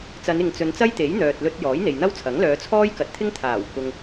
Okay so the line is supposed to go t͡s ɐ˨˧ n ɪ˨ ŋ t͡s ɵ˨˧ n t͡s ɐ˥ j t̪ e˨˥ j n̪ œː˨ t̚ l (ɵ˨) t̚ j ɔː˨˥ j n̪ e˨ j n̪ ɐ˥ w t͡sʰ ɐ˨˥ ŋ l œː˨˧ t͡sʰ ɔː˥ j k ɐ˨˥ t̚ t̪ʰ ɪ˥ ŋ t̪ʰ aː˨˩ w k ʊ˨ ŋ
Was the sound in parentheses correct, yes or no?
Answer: no